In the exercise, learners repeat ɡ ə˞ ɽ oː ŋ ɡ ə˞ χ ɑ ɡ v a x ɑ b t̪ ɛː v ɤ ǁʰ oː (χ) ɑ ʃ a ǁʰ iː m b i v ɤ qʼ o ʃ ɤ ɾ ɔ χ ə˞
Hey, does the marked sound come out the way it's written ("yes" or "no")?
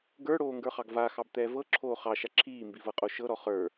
yes